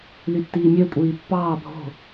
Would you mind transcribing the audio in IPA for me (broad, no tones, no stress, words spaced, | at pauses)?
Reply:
lytːiːmʲø kʷʼiːpːɑː bʱo̤